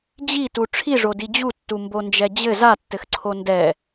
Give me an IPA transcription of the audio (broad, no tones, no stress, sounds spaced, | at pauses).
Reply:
d͡ʑ i t u ʈ͡ʂʰ i ʐ o d i d͡ʑ u tː u m b o n d͡ʒ ɛ d͡ʑ ɘ z a tː ɘ x ǀʰ o n d ɛ